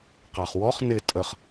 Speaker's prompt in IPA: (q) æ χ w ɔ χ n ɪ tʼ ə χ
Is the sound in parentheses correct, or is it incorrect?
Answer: correct